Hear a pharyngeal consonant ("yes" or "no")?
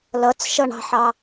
yes